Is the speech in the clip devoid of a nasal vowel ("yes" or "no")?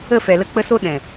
no